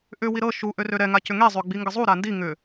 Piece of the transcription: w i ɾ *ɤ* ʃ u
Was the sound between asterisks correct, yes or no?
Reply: yes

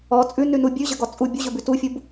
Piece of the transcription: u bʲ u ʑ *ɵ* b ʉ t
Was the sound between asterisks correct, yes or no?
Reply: yes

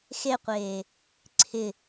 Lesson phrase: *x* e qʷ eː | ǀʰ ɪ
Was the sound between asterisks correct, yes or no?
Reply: yes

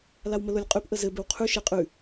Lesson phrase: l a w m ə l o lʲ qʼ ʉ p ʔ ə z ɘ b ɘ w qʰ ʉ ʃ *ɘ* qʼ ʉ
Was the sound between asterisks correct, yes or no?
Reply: no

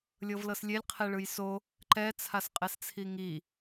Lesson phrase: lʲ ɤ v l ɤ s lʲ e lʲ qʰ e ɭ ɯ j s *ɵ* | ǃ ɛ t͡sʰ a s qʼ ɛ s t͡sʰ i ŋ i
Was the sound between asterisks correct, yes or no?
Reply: no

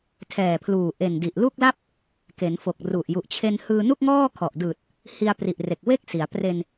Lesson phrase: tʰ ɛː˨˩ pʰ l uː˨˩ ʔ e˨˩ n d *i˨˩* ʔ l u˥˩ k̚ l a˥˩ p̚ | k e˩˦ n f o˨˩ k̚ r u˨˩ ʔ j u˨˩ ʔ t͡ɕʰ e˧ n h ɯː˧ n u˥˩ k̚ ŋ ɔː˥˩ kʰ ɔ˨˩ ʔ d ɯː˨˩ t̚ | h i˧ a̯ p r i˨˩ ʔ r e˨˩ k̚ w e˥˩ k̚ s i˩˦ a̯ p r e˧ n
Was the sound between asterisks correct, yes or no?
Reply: yes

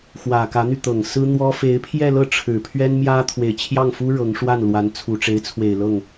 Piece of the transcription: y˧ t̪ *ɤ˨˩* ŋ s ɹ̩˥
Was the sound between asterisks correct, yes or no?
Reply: yes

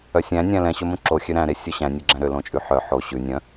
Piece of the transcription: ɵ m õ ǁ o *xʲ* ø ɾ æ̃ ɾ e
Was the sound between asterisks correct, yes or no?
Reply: yes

